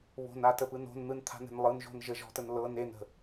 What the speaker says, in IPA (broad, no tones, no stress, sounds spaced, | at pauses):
β o̤ n a t ə p ɯ n o̤ n n̪ ɯ n t̪ʰ a̤ n̪ e̤ n lˠ ɯ n ʒ o̤ n ʒ ə ʒ ɔ̤ t ə n l ɤ n e n ə̤